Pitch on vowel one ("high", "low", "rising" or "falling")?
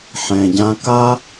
low